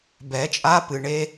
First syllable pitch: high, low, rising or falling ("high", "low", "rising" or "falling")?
rising